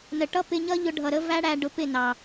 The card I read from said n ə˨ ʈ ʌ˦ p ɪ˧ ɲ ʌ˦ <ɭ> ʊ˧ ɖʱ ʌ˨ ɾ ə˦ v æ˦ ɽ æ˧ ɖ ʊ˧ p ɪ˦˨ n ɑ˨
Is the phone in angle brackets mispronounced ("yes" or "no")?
yes